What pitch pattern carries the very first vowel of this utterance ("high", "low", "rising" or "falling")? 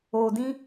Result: low